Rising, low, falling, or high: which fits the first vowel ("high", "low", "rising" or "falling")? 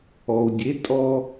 low